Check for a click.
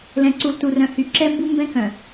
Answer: present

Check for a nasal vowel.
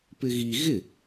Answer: absent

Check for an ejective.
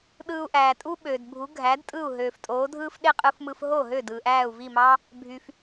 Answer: present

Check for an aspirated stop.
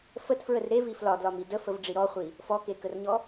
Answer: absent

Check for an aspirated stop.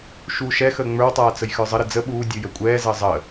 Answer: absent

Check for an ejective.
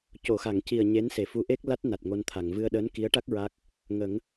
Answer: absent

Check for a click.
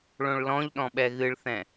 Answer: absent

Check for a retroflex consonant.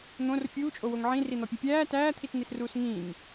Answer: absent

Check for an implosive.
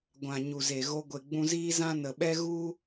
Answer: present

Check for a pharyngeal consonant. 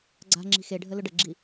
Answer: absent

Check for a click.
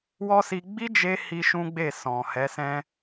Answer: absent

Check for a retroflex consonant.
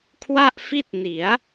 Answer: absent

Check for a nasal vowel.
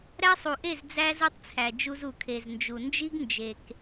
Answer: absent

